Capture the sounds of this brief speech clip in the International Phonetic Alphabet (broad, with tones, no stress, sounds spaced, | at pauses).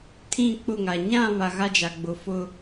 tʰ ĩ˦˨ k͡p ʊ˦˨ ŋ a˨ ɲ ã˦˨ β a˨ ɣ a˦ d͡ʒ a˨ ɡ͡b ʊ˨ f ʊ˦